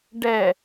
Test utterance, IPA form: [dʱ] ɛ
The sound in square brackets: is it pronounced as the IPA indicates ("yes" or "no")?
no